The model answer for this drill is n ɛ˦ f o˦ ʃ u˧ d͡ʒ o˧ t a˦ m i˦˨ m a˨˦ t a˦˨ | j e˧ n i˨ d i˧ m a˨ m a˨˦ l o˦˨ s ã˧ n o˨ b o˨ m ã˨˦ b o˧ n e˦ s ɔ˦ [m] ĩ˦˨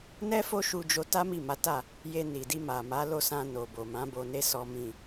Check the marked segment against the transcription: correct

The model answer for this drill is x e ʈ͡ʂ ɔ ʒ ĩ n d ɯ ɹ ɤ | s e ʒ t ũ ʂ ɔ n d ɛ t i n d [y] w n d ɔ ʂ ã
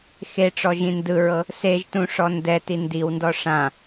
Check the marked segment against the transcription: incorrect: i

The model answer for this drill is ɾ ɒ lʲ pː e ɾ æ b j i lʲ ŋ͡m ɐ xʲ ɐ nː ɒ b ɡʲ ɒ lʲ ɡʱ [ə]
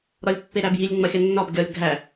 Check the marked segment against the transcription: incorrect: æ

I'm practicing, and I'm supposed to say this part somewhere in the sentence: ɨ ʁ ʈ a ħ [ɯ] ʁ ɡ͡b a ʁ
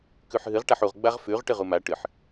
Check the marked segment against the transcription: incorrect: u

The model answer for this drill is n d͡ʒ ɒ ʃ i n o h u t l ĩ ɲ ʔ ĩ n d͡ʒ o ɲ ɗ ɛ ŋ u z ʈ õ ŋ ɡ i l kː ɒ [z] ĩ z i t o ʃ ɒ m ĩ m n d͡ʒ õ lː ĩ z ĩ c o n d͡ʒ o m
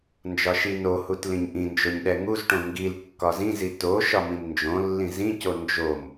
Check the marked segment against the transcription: correct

